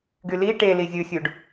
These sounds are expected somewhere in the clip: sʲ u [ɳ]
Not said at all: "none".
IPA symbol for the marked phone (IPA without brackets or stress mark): ɖ